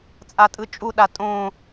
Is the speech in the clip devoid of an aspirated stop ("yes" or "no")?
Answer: yes